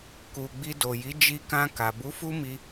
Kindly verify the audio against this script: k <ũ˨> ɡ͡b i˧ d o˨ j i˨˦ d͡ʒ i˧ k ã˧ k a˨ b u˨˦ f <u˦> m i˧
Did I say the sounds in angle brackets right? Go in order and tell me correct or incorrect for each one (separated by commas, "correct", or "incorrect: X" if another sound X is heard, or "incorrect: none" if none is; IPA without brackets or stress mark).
incorrect: u˨, correct